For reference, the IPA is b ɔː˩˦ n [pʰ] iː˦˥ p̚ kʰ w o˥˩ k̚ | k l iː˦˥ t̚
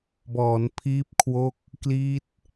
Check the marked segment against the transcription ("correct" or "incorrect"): correct